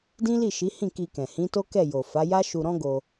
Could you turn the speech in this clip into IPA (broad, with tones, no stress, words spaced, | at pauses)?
dĩ˦li˦˨ʃi˨˦hĩ˦˨ ki˧kɛ̃˨ hĩ˨˦to˦kɛ˦˨ jo˨fa˨˦ja˦ʃu˧ ɾɔ̃˦ɡo˧